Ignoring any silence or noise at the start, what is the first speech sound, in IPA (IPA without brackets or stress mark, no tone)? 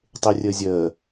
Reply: tˤ